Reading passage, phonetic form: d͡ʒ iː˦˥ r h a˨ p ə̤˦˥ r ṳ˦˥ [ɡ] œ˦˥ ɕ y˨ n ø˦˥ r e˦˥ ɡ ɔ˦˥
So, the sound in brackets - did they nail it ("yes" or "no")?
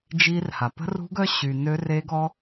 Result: yes